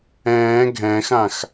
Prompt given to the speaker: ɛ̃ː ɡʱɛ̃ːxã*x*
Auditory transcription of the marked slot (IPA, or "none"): x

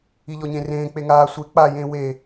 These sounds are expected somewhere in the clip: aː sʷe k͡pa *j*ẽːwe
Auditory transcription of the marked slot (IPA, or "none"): j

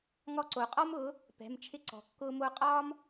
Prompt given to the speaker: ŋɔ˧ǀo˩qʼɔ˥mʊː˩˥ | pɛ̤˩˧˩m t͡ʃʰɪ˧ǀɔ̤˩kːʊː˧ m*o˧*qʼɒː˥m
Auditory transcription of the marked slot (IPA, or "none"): o˧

